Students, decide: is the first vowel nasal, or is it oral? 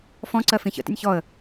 nasal